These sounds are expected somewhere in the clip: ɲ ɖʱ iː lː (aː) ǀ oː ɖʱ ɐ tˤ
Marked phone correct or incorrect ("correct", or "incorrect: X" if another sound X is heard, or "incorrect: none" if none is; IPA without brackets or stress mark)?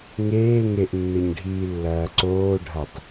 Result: incorrect: ɐː